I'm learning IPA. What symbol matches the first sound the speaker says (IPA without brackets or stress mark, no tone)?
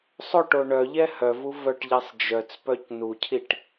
sˤ